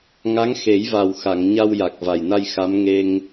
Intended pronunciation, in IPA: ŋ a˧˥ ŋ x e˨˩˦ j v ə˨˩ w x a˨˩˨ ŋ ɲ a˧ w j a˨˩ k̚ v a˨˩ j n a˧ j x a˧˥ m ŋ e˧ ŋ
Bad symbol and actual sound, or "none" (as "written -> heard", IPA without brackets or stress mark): ə˨˩ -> a˨˩